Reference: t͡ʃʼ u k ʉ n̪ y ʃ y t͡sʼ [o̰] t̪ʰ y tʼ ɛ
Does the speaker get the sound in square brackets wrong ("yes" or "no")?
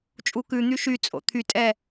no